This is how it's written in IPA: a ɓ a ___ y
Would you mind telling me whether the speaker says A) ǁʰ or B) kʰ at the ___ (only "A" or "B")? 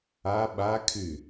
B